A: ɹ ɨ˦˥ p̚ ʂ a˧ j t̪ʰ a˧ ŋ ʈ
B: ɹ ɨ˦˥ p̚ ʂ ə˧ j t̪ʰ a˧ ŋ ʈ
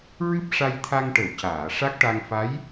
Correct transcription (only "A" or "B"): A